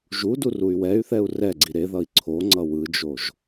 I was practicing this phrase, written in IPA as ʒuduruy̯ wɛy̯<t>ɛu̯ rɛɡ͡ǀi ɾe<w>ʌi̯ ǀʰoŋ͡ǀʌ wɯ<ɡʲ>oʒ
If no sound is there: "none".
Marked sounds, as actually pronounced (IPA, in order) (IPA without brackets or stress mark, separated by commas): θ, ð, d͡ʒ